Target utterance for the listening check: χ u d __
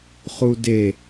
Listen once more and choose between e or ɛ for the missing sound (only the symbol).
e